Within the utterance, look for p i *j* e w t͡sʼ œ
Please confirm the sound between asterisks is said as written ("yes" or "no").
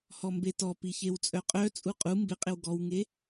no